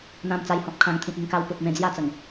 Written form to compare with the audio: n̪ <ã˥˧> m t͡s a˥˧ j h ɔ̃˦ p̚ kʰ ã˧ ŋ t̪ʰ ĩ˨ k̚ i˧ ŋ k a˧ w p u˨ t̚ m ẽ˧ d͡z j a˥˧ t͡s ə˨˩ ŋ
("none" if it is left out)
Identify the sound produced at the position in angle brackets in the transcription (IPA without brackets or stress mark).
ã˥˧